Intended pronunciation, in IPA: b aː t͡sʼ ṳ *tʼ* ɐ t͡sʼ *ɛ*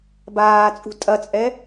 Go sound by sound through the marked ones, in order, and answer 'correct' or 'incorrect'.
correct, correct

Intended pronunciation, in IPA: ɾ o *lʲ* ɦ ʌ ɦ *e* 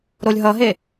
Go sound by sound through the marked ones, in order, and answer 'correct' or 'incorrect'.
correct, correct

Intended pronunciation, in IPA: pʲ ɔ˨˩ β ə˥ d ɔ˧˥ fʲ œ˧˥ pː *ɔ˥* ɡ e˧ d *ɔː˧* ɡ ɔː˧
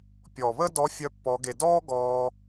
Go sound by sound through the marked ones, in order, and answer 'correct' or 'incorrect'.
incorrect, incorrect

